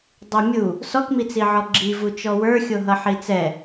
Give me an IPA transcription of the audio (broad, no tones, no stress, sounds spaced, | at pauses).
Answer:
dˤ i mʲ u | s ɔ k m i t͡s i ʕ ɔ ɡ͡ǁ i v u t͡ʃ ɔ w ə˞ xʲ o ɦ ʌ ħ i t͡s ɛ